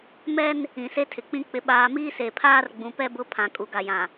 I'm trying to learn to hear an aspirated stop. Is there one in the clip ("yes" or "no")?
yes